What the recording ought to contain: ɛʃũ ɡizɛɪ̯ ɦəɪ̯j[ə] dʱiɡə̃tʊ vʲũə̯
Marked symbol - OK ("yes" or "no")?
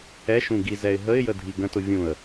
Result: yes